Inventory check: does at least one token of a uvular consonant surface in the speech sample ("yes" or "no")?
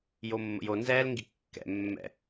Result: no